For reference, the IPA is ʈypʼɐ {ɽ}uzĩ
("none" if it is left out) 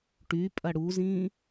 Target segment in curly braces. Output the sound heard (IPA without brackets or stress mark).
ɽ